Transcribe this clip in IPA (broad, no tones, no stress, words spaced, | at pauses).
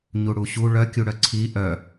ɲuɽuɕu ɭœkʲuɽœ ǀʰi ʔœ